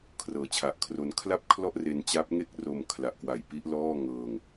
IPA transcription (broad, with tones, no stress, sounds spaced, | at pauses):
kʰ r ɤː˩˦ t͡ɕʰ a˨˩ ʔ kʰ r o˧ n kʰ l a˥˩ p̚ kʰ l ɔ˥˩ ʔ r e˧ n t͡ɕ a˦˥ p̚ ŋ e˥˩ k̚ r o˧ m kʰ l a˨˩ ʔ k w a˨˩ j p i˦˥ ʔ l ɔː˥˩ ŋ ɤː˧ ŋ